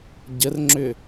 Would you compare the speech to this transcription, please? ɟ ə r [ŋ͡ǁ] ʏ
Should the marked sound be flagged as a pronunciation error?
no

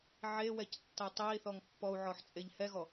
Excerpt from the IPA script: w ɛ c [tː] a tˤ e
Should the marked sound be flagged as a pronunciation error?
no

